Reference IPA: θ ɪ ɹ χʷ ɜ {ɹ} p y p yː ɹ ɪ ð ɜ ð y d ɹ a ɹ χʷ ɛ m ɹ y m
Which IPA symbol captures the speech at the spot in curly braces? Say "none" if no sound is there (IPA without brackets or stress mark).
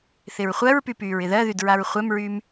ɹ